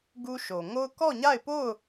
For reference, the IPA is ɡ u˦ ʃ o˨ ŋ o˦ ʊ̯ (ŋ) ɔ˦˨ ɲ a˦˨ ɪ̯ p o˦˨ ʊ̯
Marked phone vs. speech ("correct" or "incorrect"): incorrect